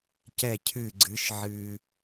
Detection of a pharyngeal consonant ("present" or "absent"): present